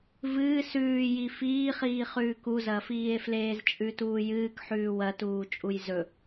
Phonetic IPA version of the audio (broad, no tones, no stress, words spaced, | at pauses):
vɨː sʉːji fiːχiː χʉːkuzɐːfiːe̯ fleːzt͡ʃʼʉtuːjɨːk ħʉːwɐtuː t͡ʃʼujzɵ